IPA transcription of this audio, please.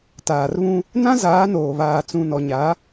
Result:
t aː˨ r β ũ˦ | n ã˦ z aː˨˦ n oː˨ β aː˨ t͡s ũ˨ n ɔ˨ ɲ a˨˦

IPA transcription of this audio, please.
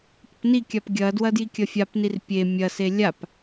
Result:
p ə p n i kʲ a p ɡʲ ɐ d w ɐ d j i kʲ ɐ fʲ a p n i r pʲ e mʲ ɐ s e lʲ a p

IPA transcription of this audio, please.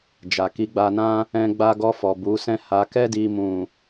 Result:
d͡ʒ a˨ k i˨˦ ɡ͡b a˧ n ã˦ | ɛ̃˦ ɡ͡b a˧ ɡ ɔ˧ f ɔ˨ b u˨˦ s ɛ̃˦ h a˧ k ɛ˦ d i˦ m ũ˦˨

